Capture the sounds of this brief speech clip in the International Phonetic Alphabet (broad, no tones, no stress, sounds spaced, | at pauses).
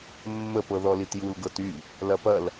mː ə p ɤ ð ɔ l i t j u l ɡ ɤ t y | l ɐ p ɐ l